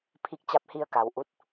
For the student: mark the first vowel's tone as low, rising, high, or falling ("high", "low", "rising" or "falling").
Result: rising